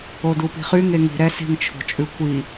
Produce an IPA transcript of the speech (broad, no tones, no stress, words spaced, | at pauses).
odupi̤χy ŋeŋi̤ ɾɛsi̤ŋt͡ʃʰo̤t͡ʃʼʉ kʷi